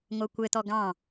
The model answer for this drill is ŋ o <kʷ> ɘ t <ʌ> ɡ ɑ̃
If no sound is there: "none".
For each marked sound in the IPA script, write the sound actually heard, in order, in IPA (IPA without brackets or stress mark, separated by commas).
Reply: kʷ, ɔ